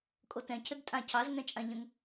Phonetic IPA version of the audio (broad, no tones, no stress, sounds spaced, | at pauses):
kʼ o t ɛ̃ cʰ ɘ d tʼ ã cʰ ɑ z ŋ ɛ̃ t͡ʃʼ ã ʎ ə̃ ŋ